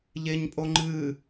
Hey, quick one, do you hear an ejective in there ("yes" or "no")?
yes